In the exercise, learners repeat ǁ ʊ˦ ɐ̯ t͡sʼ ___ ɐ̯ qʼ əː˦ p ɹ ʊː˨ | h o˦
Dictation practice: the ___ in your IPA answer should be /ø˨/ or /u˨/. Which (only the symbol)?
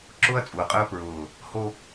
u˨